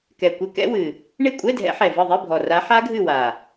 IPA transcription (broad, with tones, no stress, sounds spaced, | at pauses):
k ɛ˨˩ kʷ ɪ˧˥˧ k ɛ̰˦˥ w ɨ˨˩ | ɳ i˦˨ kʷʼ ɛ˧˥˧ dʱ ɛ̰˨˦ ħ ɛ˨˩ v ɯ˦˨ ðˤ i˧˥˧ bʱ ɔ˨˩ r a˨˦ ħ a˦˥ ɡʱ ɨ˦˨ w a˨˩